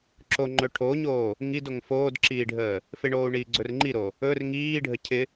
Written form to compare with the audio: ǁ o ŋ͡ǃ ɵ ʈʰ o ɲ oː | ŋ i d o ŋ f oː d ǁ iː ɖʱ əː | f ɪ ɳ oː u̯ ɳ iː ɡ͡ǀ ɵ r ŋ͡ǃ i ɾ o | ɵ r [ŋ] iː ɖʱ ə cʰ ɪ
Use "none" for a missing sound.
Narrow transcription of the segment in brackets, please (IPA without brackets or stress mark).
ŋ